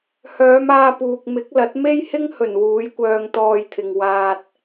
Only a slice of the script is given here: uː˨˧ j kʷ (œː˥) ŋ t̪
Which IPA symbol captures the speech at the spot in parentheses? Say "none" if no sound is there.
œː˧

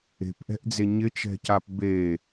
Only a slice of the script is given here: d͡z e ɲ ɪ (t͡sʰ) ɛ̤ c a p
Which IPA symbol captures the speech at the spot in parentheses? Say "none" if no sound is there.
t͡ʃ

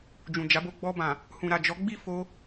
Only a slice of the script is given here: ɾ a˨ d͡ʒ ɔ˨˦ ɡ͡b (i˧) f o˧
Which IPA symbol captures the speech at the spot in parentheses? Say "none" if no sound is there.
i˦˨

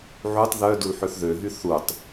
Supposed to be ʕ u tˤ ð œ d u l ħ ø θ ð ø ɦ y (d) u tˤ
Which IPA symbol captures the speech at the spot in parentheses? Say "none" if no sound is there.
θ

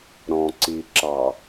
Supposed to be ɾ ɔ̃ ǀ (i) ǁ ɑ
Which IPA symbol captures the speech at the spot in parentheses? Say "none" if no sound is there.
i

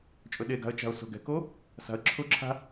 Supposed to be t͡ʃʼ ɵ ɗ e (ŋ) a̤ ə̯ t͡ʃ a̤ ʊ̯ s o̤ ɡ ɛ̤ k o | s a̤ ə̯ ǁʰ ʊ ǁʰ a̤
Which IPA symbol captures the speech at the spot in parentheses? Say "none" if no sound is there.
ɡ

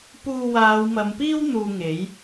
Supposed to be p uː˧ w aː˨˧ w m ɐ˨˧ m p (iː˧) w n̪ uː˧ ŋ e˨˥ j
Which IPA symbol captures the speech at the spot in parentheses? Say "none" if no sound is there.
iː˥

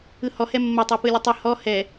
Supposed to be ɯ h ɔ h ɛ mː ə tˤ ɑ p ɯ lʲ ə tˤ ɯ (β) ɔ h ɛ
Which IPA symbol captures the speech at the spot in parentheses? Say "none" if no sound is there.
h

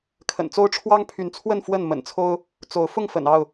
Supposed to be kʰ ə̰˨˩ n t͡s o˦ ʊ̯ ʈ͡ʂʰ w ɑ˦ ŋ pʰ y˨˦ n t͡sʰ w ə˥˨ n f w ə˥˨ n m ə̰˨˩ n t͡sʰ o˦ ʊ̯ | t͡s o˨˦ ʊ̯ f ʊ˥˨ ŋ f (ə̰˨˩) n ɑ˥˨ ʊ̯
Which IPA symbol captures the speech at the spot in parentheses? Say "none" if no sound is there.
ə̰˨˩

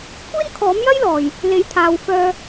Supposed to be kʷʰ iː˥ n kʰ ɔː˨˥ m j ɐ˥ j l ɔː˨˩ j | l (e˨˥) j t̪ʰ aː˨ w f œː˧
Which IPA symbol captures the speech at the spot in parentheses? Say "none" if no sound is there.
e˨˥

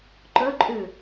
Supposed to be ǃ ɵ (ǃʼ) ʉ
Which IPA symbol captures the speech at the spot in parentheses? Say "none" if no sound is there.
ǃʼ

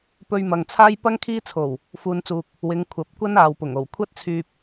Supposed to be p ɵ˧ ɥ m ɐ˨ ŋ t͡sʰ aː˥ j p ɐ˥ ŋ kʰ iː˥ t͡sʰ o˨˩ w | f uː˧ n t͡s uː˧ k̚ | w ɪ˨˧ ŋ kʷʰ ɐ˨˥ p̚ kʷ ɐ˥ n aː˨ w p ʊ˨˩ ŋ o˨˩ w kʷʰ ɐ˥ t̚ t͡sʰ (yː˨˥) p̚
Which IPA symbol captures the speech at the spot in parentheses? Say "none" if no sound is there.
yː˧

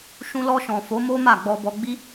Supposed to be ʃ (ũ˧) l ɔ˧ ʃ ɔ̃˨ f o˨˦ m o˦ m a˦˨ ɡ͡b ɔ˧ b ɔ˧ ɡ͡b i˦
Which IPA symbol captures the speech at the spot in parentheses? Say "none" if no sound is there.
ũ˧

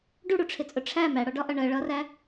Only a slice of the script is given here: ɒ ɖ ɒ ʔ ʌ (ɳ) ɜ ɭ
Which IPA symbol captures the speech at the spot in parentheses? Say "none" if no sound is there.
ɳ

